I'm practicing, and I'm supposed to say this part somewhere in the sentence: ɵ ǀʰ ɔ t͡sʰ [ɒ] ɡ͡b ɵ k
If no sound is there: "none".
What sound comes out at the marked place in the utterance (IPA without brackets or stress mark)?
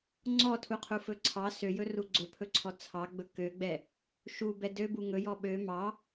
ɑ